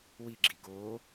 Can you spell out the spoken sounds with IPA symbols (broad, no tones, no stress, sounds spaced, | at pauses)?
w i ɡ͡ǁ i ɡ o